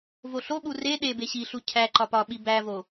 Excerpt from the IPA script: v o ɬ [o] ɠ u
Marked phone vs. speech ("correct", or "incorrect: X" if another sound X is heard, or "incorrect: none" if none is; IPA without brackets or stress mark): correct